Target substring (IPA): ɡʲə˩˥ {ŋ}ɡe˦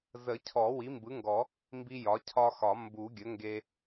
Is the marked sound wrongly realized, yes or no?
no